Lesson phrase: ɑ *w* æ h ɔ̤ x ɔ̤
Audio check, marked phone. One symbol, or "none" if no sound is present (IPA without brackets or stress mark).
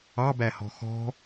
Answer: b